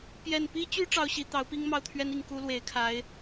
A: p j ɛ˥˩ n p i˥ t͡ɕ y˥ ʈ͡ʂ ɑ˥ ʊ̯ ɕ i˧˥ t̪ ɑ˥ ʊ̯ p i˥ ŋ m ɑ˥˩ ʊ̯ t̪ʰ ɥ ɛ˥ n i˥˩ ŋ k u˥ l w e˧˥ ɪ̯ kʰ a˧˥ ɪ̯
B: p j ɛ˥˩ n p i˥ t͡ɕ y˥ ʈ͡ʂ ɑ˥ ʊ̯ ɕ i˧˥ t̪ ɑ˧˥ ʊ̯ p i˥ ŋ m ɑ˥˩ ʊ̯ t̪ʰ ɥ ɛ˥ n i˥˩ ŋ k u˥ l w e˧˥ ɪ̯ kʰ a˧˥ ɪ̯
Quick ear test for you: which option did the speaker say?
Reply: B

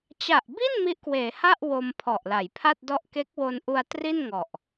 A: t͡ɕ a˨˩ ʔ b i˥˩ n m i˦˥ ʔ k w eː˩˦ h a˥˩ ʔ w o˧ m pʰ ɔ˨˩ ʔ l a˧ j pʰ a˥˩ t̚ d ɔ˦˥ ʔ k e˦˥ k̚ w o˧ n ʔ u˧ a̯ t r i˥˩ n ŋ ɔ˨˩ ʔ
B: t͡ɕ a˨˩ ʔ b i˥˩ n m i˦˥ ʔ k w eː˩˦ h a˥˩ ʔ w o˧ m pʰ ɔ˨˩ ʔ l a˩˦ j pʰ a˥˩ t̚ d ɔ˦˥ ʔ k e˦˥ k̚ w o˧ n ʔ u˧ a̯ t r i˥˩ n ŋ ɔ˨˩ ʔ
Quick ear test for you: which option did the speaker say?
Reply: B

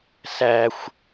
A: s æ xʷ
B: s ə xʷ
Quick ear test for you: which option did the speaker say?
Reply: A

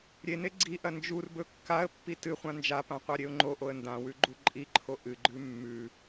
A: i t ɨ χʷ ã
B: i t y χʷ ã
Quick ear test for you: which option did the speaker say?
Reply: A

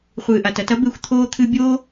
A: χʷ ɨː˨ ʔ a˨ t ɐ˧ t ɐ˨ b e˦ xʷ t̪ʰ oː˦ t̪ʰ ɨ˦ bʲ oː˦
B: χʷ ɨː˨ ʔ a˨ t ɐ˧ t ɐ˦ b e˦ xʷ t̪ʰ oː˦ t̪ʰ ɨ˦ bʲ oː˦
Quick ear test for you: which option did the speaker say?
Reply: B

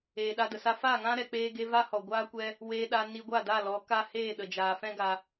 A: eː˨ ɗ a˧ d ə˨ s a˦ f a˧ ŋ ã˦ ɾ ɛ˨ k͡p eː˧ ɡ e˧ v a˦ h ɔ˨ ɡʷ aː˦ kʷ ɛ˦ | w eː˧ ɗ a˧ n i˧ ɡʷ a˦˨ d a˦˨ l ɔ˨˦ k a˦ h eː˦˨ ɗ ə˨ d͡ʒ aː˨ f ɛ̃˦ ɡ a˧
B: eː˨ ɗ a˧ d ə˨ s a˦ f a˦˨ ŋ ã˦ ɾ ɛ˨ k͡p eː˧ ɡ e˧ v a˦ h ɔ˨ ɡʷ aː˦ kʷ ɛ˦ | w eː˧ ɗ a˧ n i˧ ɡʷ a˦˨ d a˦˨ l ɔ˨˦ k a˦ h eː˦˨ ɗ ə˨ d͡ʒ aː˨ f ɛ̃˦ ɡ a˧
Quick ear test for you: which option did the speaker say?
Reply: B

